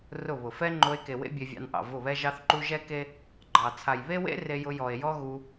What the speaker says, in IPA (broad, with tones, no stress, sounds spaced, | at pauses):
r ʊ˦˨ β ʊ˨ f ɛ˦ ŋ͡ǃ o˧ e̯ k e˨ w ḛ˦ bʲ e˧ vʲ ɑ̰˧ n ʔ ɑ̰˨ v ʊ˦˨ β ɛ˦ ʒ ɑ˦ θ ǃ u˦ ʒ ɛ˦ k e˦ | ɡ͡ǃ ɑ˨ t͡sʰ a˨ j β e˦ w ḛ˦ r e˧ j ʊ˧ j ɔ˨ e̯ j ɔ˦ ɣ u˧